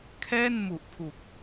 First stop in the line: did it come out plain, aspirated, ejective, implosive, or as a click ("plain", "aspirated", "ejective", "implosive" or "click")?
aspirated